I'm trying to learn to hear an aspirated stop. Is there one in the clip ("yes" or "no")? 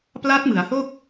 no